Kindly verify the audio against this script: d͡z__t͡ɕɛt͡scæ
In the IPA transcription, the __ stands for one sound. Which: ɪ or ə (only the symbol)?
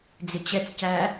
ɪ